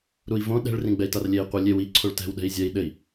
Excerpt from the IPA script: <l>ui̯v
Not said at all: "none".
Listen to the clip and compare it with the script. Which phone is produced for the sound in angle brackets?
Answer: ɾ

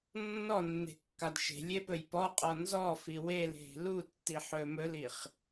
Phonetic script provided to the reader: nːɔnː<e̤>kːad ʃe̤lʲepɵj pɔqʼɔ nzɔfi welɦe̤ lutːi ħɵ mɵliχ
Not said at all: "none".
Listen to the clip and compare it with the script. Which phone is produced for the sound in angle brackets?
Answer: e̤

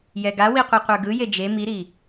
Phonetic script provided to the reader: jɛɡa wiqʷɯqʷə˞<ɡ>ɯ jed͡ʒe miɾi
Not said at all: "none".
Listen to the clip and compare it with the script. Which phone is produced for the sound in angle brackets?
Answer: ɡ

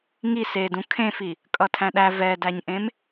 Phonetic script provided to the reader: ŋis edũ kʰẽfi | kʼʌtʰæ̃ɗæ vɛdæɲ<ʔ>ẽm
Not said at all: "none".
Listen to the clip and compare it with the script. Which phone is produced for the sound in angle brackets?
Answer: ʔ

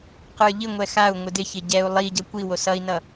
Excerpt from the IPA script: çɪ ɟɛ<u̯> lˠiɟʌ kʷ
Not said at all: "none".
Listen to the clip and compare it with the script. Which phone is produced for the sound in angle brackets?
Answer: u̯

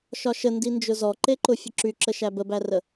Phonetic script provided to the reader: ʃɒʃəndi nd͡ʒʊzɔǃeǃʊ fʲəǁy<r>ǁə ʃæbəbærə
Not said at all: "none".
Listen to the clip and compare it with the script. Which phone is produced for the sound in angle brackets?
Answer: none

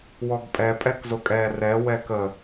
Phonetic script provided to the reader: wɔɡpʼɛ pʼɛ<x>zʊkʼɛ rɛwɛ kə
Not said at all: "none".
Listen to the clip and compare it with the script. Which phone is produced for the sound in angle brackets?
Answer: k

